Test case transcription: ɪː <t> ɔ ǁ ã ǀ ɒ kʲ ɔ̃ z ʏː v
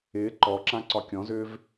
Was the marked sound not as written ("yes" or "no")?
yes